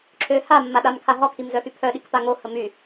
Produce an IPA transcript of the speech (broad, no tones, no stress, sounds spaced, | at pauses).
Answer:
ǁʰ ø h a mː a ɗ a m kʰ a ɦ ɔ kʰ i m z œ x y pʰ œ ɗ i k p a ŋ o h ə m y